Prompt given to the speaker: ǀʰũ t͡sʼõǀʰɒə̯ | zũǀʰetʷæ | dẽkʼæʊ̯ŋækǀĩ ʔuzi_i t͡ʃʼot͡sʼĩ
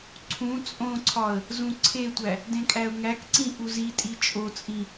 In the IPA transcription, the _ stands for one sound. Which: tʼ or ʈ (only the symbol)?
tʼ